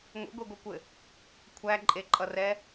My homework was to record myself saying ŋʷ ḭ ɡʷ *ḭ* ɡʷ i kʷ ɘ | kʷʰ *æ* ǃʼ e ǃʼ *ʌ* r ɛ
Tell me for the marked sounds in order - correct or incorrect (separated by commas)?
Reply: incorrect, correct, correct